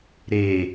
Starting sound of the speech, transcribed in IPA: ɾ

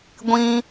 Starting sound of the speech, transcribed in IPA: ɡʷ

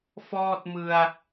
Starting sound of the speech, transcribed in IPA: f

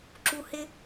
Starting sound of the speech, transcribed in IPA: ǁ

